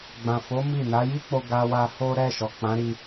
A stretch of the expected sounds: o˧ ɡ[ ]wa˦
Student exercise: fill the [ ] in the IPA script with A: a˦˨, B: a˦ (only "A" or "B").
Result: B